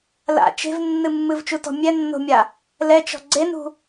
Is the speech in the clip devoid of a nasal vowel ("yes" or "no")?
yes